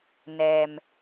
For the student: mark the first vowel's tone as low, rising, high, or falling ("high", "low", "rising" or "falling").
low